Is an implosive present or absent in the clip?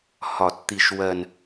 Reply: absent